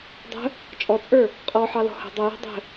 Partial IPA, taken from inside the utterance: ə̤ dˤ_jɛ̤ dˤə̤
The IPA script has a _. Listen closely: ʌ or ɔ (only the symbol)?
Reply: ʌ